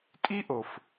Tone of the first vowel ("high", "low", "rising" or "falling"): high